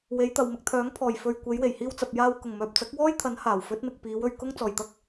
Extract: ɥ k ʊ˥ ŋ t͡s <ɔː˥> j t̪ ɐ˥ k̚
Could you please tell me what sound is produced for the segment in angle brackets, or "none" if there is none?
ɔː˨˩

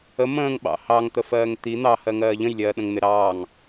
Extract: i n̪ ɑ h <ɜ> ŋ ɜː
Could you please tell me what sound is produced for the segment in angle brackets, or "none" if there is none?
ɜ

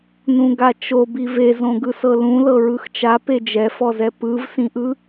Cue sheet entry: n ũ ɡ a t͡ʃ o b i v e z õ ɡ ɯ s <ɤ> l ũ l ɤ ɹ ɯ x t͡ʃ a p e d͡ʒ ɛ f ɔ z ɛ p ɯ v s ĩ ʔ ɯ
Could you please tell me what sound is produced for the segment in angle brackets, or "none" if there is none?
ɤ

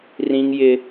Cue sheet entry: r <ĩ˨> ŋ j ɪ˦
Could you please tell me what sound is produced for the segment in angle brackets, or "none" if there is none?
ĩ˦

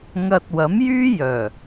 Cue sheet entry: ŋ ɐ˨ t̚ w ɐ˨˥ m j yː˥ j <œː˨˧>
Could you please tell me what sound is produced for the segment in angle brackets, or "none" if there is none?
œː˨˩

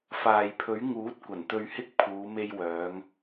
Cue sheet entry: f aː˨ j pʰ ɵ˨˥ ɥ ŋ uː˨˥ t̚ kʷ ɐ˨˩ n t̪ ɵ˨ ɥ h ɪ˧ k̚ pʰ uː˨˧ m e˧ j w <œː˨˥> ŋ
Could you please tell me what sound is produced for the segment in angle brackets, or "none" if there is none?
œː˨˧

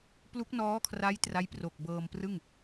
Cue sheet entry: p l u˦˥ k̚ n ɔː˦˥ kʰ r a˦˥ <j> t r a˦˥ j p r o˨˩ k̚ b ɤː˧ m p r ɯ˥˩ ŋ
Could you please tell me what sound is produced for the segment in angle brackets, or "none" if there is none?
j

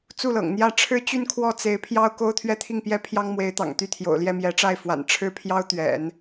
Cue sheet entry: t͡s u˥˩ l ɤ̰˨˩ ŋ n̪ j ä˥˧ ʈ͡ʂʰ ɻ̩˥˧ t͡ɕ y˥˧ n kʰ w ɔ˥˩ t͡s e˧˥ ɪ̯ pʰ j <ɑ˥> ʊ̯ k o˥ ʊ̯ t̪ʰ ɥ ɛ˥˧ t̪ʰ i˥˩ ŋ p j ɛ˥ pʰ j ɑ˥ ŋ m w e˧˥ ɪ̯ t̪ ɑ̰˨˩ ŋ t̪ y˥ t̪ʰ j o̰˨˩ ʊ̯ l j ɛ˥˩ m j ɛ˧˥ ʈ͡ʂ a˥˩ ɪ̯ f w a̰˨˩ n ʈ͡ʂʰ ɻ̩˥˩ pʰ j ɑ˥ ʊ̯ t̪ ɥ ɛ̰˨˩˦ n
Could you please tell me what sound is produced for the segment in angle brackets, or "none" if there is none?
ɑ˥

